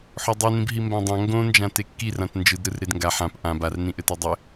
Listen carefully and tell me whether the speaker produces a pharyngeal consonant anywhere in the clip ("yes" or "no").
yes